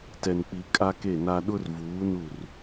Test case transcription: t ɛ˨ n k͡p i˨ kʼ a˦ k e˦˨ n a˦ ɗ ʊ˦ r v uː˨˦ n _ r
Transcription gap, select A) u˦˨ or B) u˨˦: A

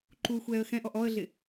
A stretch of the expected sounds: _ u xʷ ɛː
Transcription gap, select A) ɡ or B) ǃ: B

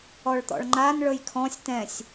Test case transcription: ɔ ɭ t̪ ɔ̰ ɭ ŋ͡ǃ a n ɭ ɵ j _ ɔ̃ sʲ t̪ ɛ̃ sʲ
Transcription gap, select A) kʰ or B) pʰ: A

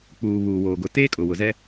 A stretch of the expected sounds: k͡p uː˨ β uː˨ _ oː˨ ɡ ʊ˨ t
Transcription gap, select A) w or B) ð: A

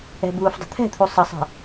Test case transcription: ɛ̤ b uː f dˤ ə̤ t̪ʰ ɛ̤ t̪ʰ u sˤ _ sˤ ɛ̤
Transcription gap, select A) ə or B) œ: A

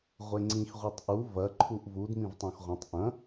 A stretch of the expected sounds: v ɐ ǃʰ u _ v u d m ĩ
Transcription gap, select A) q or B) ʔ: B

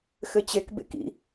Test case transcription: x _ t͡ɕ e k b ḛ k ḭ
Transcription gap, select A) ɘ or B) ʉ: A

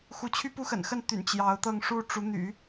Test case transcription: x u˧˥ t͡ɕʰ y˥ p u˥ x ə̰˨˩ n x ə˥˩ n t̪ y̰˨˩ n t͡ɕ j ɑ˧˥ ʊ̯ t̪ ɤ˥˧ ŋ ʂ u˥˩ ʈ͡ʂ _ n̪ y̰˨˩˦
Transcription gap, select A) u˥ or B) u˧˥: B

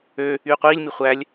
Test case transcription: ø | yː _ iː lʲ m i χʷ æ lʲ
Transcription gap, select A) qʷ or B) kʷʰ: A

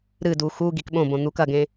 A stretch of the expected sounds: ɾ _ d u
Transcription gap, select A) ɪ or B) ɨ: B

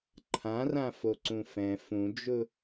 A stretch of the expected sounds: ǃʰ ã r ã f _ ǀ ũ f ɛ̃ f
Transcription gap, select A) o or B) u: A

